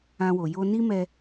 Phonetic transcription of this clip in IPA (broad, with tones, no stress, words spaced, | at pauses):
ã˦wo˧ jo˦ ni˦mɛ˧